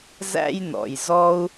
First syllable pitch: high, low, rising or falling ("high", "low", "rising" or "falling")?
high